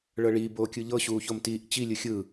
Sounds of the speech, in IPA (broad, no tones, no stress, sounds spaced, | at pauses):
ɭ ɤ ɭ iː b oː kʲ ɯ ʎ ɤ ɕ uː ç o m t iː ʔ t͡ɕ i lʲ ɯ xʲ ɯ